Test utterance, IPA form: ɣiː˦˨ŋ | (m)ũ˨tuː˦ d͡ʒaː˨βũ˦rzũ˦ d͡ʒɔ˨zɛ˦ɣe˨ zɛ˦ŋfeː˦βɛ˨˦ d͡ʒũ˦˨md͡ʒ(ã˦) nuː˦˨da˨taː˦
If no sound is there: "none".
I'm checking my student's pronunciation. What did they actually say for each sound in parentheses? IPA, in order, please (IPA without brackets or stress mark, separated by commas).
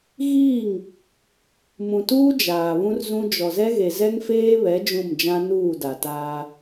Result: m, ã˦